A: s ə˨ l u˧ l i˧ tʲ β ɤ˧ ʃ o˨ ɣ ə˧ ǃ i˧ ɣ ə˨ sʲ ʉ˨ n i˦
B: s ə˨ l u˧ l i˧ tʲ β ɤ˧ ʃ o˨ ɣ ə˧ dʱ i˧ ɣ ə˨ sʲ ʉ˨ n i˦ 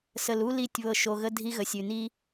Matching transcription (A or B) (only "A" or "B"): B